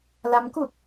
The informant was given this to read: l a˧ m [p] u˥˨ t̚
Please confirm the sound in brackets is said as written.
no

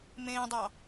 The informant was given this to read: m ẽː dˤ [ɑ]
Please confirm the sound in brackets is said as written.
yes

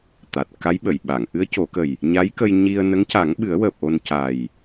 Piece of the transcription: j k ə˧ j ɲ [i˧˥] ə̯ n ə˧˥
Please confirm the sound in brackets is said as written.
no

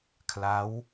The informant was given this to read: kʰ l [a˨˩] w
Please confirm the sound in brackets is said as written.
no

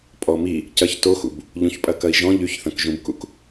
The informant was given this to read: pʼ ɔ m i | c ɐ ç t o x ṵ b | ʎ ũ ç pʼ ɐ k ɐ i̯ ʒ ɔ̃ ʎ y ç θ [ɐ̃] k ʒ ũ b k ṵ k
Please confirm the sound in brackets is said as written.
yes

